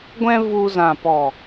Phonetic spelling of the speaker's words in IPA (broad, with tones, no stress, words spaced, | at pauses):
ɡʷɛ̃˧ vu˧ zã˨pɔ˨